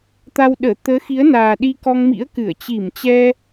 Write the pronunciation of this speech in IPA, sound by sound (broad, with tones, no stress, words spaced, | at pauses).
t̪a˧wɗəː˧˩ t̪əː˨˦xi˨˦ə̯naː˨˩ ɗi˧kɔ˧ŋmḭ˧˥ə̯kɨ˧˩ə̯ t͡ɕi˧˩mt͡ɕɛ˧